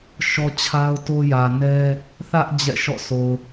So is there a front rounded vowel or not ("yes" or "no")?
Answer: no